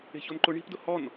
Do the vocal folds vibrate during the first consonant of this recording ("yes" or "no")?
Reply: no